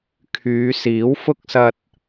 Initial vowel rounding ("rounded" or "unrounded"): rounded